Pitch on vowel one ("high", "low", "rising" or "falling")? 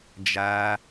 high